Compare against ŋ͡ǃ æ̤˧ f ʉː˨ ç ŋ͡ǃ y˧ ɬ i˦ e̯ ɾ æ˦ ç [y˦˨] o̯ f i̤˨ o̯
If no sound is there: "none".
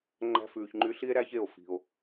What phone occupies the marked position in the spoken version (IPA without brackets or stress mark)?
e˦˨